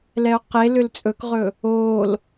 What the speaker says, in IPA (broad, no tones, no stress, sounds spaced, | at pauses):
l ɛ ʊ̯ q e l ʏ l t͡sʼ ɵ k ʁ ɵ | oː l